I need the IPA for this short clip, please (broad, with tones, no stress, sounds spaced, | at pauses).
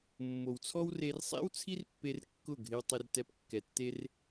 mː o˨ w t͡sʰ ɔ˦ w r e˧ r sˤ ḛ˦ w t͡sʰ i˦ r pː e˧ r kː ʊ˦˨ ɡʱ ɪ˧ w tˤ ɪ˧ r t ɛ˧ p kː ɛ˨ tː e˦ r